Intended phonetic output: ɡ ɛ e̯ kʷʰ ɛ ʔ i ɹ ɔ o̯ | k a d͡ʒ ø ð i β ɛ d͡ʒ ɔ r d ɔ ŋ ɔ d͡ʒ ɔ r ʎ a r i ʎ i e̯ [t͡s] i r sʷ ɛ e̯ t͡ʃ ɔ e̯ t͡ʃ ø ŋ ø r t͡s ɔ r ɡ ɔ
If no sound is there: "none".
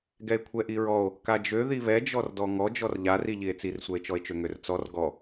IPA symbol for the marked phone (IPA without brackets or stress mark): t͡s